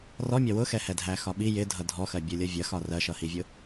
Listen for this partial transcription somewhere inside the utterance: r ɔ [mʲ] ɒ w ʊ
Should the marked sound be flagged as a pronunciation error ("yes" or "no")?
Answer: no